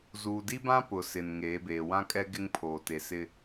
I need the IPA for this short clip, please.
z uː˨ d i˦ b ã˦ p ʊ˨ s ɪ˨ n ŋ eː˨˦ b eː˨ w ã˦ kʼ ɛ˦ ɡ ɪ˦ ŋ pʰ oː˨ t e˨ s ɪ˦

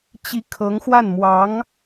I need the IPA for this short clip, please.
t͡ɕ i˧˥ kʰ ɤ˧˥ ŋ x w a˥˩ n m w ɑ˧˥ ŋ

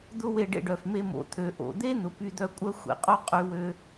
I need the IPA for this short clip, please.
d̪ ʊ˥ w e˧ ɖ ḛ˧ ɖ œ˩ f m e˧ m o̰˩ t̪ʰ ø˩ ʔ o̰˩ d̪ e˥ n̪ ʊ˩ p y˧ d̪ œ˧ kʷʼ œ˥ xʷ ḛ˩ qʼ o˥ qʼ y˧ w ø˧

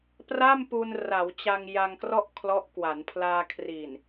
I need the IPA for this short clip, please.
p r a˥˩ m p u˧ n r a˩˦ w t͡ɕ a˧ ŋ j a˧ ŋ k r ɔ˥˩ ʔ kʰ l ɔ˦˥ ʔ k w a˩˦ n pʰ l aː˧ kʰ r i˨˩ n

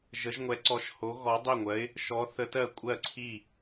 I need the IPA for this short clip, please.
ʒ ə˧˥ ʒ ŋʷ ɛ˧˥ ǀ ɔ˧˥ ʃ h o˧˥ ɣ ɔ˧˥ dˤ i˥˨ ŋʷ ɜ˧˥ ɪ̯ | ʃ ɔ˧˥ θ ə˧˥ t ɜ˥˨ kʷʼ ɜ˥˨ ǀʰ i˥˨

